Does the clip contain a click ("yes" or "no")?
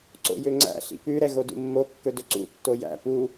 yes